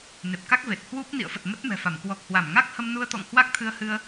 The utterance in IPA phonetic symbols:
n e˨˩ p̚ k a˦˥ k̚ v e˨˩ t̚ h w u˦˥ p̚ n ḭ˧˨ ə̯ f ə˨˩ t̚ m ə˦˥ t̚ m ɛ̤˨˩ f a˧˩ m k w ɔ˨˩ k̚ h w a˧˩ m ŋ a˦˥ k̚ h ə˧ m n u˧ ə̯ t̪ ɔ̰˧˨ ŋ h w a˦˥ k̚ t̪ʰ ɨ˧ ə̯ h ɨ˧ ə̯

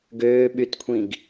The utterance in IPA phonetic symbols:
ɡ øː ɓ y t kʷʰ ĩ ɡ

